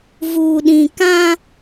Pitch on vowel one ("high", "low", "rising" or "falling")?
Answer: low